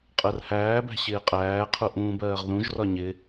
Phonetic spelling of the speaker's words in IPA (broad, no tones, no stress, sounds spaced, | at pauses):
qʼ ɜ r h æː b æ̤ ɕ ɪː qʼ æː qʰ u ʔ ũː b ɜː ʁ ð ũ ʒ r ɒ ɲ ɪ